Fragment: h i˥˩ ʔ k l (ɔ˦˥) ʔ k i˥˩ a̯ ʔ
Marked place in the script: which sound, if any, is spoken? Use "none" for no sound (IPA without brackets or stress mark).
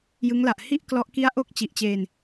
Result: ɔ˦˥